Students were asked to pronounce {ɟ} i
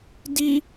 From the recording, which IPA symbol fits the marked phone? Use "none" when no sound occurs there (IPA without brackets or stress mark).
d